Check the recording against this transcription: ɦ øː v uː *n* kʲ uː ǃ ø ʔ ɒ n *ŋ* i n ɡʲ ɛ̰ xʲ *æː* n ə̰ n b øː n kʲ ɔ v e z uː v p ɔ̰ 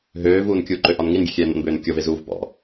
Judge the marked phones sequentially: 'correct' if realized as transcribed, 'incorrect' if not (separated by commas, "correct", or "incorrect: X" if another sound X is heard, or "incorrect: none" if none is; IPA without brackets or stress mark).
correct, correct, incorrect: ɛː